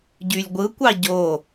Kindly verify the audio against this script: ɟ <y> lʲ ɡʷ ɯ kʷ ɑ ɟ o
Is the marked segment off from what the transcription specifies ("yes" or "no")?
no